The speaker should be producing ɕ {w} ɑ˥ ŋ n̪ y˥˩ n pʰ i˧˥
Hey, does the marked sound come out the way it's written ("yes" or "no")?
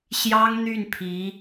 no